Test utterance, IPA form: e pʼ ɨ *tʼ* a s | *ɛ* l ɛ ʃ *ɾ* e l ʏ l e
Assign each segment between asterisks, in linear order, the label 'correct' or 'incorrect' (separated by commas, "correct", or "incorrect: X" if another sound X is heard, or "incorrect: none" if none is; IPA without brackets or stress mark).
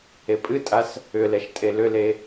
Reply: correct, incorrect: ʏ, incorrect: tʼ